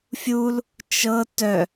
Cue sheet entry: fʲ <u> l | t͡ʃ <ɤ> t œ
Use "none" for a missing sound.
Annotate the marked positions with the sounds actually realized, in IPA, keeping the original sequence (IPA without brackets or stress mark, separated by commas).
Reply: u, ɤ